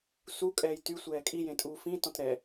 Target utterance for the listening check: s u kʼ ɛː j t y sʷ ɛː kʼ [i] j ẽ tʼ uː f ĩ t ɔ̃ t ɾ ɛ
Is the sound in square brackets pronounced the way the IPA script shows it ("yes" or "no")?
yes